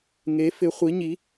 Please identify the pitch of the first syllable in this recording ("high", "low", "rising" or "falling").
rising